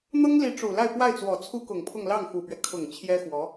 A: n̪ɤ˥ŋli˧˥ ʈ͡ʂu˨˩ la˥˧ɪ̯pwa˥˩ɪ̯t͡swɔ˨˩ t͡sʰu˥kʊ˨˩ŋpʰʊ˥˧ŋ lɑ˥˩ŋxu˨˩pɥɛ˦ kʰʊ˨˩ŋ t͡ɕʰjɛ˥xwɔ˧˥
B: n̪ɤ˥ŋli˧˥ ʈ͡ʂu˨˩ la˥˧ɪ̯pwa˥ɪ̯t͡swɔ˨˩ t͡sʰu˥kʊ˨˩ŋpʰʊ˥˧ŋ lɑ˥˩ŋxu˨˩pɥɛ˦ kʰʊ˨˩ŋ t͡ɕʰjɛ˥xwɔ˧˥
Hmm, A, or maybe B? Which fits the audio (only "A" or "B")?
A